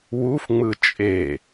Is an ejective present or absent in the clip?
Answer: present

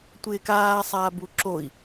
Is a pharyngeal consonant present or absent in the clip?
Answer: absent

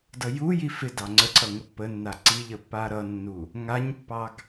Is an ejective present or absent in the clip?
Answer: absent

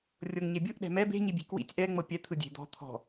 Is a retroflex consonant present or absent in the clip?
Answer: absent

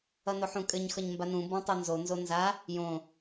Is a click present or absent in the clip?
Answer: absent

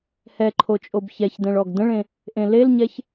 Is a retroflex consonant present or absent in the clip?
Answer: present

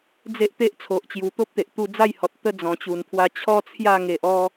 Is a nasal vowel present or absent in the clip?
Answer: present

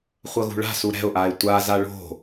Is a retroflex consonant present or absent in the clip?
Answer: present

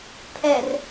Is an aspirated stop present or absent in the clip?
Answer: present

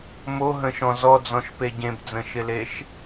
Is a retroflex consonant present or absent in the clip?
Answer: absent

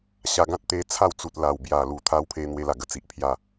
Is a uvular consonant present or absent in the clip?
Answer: absent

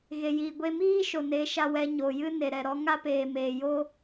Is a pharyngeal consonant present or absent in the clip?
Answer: absent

